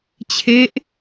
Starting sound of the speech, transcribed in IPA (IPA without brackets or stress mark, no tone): t͡ɕʰ